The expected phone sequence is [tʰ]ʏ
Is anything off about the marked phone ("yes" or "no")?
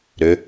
yes